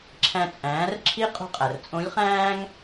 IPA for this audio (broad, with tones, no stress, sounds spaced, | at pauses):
ǁʰ æ̃˧ t͡sʼ æ̃ː˩˧ r ǁʰ i˧˥ qʼ ṳ˧ qʼ æ˩ r t͡sʼ õ˧˥ lʲ χ æ̃ː˥ ŋ